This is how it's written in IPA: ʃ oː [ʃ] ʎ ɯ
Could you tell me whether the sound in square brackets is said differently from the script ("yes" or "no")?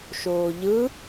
yes